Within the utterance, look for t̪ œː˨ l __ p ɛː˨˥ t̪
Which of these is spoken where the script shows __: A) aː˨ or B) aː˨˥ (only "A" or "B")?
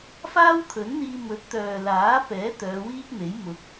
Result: B